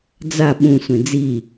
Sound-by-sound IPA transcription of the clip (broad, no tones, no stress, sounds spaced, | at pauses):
d͡z a ɓ ũ sʷ ẽ d͡z i